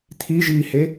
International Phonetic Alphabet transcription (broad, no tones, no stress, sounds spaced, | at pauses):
t̪ʰ i ʒ iː h e